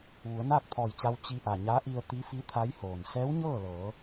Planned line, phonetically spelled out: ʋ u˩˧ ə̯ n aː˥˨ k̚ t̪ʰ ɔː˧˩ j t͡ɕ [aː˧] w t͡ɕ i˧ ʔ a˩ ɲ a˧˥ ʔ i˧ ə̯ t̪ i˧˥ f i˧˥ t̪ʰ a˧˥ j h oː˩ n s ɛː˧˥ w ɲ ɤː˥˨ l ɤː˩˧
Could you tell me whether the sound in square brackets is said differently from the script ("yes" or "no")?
yes